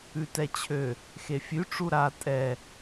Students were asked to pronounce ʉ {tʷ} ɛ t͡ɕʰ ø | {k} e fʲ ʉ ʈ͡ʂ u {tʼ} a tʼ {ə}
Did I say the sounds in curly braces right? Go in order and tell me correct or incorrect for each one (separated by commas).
incorrect, incorrect, incorrect, incorrect